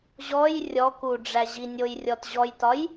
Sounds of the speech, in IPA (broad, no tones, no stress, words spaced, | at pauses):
ʑɔj rʲɔku ɖ͡ʐæʑinʲoj rʲɔtʑɔjtɒj